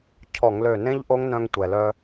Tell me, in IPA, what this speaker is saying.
cʰ ɔ˧˩˧ ŋ l ø˧˩ n ẽ˦˥ ʎ ʔ o˦˥ ŋ n œ̃˧ ŋ tʷ ɛ˩ l œ˧

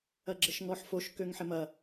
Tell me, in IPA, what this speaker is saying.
ɐ ɡ͡ǁ ə ʃ ŋ ɔ ħ f o ʃ k ø ŋ ħ ɪ m ɐ

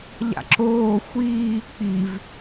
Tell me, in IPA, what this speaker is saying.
ʎ a̰ ǁ oː xʷ iː k͡p i v

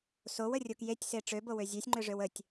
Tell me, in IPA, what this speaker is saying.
s o w ə rʲ o k j e tʲ s e ʈ͡ʂ ø b o w ø zʲ ø sʲ ŋ͡ǃ ø ʐ ø w ə tʲ

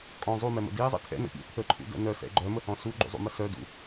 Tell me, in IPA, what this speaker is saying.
kʼ ɔ̃ zˤ u m ɛ m ə̰ d i zˤ ə̰ tʰ ɛ̰ n ə̰ pʲ ɛ̰ pʰ ə ǃʰ ṵ d ə̰ n œ s ɛ̰ ɡ͡ǃ œ m ə h ɔ̃ s u ɡ͡ǃ ṵ zˤ ṵ m ə s œ d ṵ

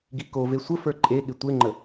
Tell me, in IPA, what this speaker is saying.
ɡ i k o v e sʷ ə f ə˞ ǃʼ e ɠ ɪ tʷ e ŋ͡ǃ ə

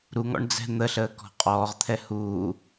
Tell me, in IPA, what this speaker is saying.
ɾ u ŋ ɔ̰ ɳ d͡z ɛ̤ n̪ ə ɬ əː k ɔ̤ qʼ ɔː ʁ t̪ʰ ɛ h uː

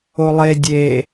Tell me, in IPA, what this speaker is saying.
o lˠ e dʲ e

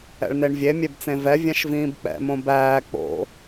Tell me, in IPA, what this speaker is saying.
ɛ̰ ɭ n e ɳ vʲ e mʲ e b t͡s ẽ v ɛ vʲ æ̃ ʃ v ĩː b k͡p ɛ̰ m õ b æː k͡p o̰

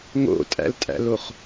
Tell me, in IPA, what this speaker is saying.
ŋ o̰ tʼ æ̰ l tʼ æ̰ l o χ

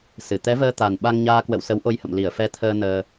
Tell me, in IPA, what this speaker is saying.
s ɨ˧˩ t̪ ɛ˨˦ v əː˧ t̪ a˨˩ n ɓ a˧ ŋ ɲ aː˧ k w ə̰˧˨ w s ə˨˦ w ʔ o˧ j h ə̰˧˨ m l i˧˩ ə̯ f ɛ˧ t̪ʰ əː˧ n əː˧

